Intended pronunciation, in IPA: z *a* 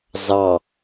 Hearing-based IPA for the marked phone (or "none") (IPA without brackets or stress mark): ɑ